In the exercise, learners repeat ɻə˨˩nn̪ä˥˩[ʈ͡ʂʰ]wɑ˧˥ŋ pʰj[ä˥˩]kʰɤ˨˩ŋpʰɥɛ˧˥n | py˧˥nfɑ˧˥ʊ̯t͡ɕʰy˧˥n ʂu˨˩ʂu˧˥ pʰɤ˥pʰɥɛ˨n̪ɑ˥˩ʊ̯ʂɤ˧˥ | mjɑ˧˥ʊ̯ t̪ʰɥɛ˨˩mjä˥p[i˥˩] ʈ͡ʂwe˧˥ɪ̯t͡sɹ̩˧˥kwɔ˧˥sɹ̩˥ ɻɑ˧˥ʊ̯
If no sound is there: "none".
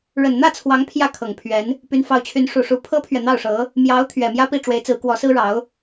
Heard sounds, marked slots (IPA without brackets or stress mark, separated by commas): t͡sʰ, ä˥˩, i˥˩